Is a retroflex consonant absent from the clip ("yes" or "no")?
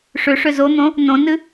no